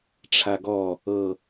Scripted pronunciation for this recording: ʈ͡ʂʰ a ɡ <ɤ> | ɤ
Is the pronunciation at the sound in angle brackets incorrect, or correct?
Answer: incorrect